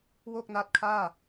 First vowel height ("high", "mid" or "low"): mid